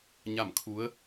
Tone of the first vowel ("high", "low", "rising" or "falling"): falling